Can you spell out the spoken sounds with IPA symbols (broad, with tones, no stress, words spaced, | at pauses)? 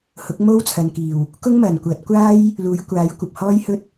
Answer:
hʊ˨˥k̚mo˥wt͡sʰɐ˨nkiː˨˩w | kʊ˥ŋmɐ˨˩nkʷɐ˨˥t̚ kʷaː˥j | luː˨˥jkʷaː˨˥jkʷɐ˨p̚ hɔː˥jhɵ˥t̚